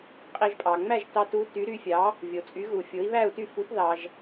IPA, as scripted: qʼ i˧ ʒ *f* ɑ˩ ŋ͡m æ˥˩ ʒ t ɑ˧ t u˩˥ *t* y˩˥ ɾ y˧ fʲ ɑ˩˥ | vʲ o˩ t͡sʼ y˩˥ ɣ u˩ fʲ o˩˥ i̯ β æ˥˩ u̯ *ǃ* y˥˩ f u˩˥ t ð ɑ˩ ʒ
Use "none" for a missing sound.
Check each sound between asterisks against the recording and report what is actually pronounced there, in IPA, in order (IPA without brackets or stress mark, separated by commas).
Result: pʼ, t, t